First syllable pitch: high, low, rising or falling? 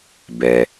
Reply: low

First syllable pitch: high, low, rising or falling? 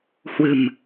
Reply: low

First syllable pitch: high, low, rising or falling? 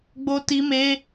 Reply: high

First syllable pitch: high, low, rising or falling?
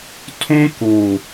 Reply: high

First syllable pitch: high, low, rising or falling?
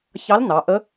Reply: rising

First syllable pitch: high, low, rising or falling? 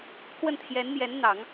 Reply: falling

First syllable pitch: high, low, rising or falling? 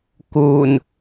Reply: low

